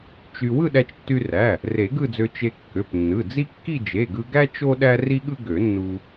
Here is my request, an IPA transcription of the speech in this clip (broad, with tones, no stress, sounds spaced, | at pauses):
t͡ʃ y˧ w ɯ˥˧ ɗ æ˧ t͡ʃ tː y˧ r æ˩˧˩ | r e˨˩˦ ɡ ɯ˥˧ d͡z ø˧ t͡ʃ e˧ kː ø˩˧˩ p nː ɯ˩˧˩ d͡z i˥ kː i˥˧ d͡ʒ e˩˧˩ ɡ ɯ˧ ɡ æ˥ t͡ʃ o˥ ɗ æ˥ r i˥ ɠ ɯ˥ ɡ ø˨˩˦ nː u˧